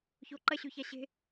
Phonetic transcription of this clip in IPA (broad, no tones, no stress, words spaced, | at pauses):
çoǃɐɕʉça ɕe̤